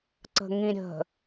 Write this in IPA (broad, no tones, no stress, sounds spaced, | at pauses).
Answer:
ǀ ə̤ ŋ ĩ ɾʲ ə̤